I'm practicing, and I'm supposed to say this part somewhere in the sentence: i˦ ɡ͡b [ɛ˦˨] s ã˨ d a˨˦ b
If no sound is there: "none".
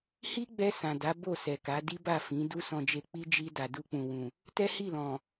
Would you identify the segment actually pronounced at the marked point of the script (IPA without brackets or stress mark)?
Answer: ɛ˧